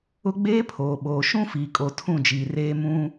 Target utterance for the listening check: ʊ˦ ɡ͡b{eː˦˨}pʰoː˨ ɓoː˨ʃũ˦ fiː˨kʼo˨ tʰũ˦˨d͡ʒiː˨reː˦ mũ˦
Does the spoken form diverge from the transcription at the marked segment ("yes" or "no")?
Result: yes